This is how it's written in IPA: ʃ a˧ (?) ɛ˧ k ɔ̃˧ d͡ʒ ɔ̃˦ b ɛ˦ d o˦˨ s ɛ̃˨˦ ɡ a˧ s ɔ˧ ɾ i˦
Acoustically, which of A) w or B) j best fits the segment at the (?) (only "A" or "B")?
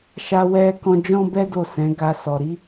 A